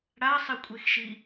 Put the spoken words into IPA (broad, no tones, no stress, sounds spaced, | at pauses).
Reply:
ɽ a sˤ i kʷʼ e x ʃ i